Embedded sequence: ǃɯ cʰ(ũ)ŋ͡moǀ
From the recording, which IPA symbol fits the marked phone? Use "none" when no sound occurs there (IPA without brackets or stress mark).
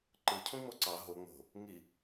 ũ